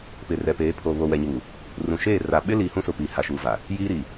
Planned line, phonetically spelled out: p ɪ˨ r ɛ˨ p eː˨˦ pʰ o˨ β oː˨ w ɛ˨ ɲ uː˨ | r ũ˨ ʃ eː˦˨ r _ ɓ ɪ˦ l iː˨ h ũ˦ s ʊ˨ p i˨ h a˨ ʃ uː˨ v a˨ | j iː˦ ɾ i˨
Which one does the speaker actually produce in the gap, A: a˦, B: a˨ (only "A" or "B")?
B